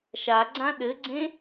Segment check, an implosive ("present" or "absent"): present